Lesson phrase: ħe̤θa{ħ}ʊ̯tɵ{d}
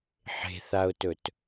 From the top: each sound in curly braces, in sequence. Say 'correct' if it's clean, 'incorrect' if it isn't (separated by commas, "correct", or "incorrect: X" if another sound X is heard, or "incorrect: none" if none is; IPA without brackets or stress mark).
incorrect: none, incorrect: t